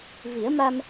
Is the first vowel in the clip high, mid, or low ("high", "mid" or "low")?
high